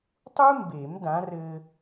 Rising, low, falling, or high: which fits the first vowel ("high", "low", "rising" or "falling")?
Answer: high